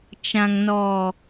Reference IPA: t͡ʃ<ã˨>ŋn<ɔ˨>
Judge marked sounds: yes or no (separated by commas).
yes, yes